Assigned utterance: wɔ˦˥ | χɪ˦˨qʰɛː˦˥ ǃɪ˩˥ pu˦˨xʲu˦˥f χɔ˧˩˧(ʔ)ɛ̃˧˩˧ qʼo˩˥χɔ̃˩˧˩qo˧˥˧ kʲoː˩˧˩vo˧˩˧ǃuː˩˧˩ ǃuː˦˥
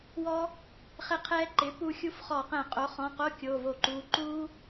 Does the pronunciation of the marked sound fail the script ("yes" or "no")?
yes